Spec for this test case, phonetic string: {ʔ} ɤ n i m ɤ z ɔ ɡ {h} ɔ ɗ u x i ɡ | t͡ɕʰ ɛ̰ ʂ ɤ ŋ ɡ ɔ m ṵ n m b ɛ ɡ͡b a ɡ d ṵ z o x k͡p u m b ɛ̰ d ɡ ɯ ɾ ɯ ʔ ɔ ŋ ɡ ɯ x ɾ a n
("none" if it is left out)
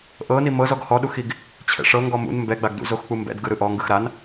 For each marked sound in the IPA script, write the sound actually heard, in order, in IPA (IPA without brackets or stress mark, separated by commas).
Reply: ʔ, h